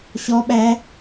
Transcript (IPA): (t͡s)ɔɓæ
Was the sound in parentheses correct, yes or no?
no